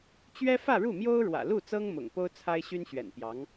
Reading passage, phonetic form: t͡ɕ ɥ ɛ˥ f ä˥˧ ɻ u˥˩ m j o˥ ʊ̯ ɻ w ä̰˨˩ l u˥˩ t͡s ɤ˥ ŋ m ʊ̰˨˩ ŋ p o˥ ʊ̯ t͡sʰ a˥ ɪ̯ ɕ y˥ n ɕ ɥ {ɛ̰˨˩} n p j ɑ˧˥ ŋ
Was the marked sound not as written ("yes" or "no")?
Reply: no